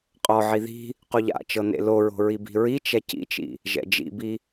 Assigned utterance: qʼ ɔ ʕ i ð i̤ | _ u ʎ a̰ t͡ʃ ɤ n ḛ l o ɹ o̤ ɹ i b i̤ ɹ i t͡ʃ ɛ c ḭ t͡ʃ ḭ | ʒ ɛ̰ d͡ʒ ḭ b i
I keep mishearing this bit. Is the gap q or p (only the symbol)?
q